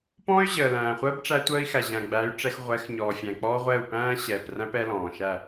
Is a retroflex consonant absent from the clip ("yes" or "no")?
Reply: no